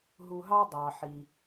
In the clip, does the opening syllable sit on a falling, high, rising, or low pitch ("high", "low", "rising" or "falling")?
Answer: low